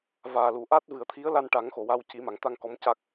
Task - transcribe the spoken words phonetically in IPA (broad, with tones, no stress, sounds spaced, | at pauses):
v aː˨˩ l u˨˩˨ ʔ a˦˥ t̚ v ɨ˨˩˨ ə̯ t̪ʰ i˧˥ ə̯ l a˧ n ʈ a˨˩˦ ŋ x o˨˩˨ w a˧ w c i˨˩˦ m a˨˩˨ ŋ t̪ a˧ ŋ k ɔ˧˥ m c a˦˥ k̚